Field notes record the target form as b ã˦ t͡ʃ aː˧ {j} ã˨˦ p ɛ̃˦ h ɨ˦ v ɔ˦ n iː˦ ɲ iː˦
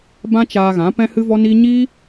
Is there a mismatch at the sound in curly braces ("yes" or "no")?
yes